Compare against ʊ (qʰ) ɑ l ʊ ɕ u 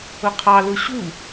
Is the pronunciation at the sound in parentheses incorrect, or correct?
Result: correct